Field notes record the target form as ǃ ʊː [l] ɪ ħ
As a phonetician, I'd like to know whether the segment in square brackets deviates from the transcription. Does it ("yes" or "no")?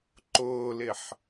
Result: no